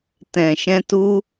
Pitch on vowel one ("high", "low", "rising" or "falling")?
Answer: low